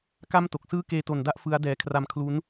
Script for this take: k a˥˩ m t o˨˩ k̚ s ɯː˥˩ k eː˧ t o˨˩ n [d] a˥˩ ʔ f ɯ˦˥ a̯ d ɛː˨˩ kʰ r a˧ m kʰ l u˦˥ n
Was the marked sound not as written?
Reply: no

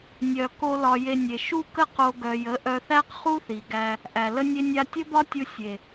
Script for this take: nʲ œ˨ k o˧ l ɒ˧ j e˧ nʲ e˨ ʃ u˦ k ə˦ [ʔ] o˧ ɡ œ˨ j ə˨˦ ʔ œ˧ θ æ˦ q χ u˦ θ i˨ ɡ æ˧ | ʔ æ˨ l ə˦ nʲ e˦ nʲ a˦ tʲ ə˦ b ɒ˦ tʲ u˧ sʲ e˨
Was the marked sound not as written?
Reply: yes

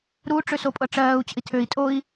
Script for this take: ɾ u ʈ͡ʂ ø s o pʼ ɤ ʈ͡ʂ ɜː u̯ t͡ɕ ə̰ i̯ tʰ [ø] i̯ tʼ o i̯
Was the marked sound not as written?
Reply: no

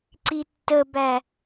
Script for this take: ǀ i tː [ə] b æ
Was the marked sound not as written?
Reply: no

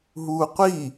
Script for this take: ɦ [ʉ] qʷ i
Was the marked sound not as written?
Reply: yes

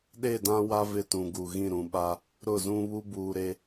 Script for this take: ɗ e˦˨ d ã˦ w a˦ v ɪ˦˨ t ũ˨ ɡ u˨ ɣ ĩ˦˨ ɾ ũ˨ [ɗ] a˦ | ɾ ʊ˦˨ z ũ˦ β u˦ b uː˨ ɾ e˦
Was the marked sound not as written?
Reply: yes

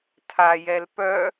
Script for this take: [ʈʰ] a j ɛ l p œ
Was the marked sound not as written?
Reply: yes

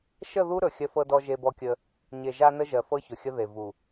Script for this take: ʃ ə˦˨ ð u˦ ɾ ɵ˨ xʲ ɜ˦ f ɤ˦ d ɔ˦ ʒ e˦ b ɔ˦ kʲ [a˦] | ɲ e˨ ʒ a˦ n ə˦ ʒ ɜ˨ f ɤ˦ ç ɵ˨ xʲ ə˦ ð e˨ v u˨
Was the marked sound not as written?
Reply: yes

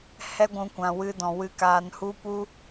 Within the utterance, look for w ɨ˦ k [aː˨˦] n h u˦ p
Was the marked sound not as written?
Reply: yes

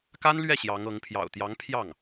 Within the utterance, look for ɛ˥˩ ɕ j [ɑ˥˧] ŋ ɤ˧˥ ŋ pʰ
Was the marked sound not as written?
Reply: yes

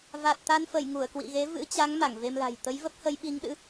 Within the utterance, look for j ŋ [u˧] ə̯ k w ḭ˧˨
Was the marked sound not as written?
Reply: yes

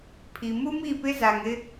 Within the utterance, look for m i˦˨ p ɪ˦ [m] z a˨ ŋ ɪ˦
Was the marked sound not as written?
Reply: yes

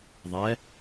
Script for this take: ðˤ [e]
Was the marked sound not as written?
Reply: yes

